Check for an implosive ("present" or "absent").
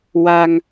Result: absent